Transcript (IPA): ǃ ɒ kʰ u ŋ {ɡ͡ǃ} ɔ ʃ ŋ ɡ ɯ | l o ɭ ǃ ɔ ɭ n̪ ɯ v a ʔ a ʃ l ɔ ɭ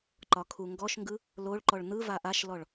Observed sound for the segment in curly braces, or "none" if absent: ɡ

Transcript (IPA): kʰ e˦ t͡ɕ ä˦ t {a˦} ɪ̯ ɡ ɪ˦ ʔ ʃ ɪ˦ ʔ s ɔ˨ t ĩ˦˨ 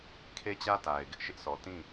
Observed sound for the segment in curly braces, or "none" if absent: a˨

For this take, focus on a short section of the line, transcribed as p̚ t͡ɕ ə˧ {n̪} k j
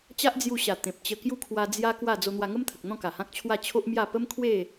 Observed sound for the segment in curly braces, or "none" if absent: none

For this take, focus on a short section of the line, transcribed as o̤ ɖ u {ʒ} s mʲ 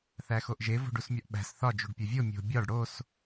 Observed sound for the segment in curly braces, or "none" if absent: none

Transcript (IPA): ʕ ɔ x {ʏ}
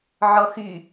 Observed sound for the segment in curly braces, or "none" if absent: y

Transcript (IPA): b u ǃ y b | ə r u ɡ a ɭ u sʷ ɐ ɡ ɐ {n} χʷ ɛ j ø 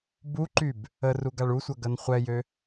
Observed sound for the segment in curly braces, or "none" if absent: n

